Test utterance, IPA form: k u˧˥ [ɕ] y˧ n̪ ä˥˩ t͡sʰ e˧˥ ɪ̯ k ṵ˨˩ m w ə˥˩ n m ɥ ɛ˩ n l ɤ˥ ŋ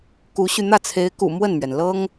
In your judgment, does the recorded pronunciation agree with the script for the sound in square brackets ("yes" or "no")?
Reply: yes